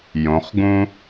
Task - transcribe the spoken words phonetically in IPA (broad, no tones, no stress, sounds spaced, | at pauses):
j õ χ ɡ ũ